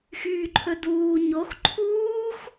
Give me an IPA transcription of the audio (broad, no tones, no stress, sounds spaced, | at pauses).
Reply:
x yː ǃʰ ɵ d uː ɲ o x ǃʰ uː x